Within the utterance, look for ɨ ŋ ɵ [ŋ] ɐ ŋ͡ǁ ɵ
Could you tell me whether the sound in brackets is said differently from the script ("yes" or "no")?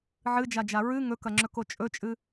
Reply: yes